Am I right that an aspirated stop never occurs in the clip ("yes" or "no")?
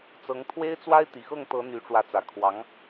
no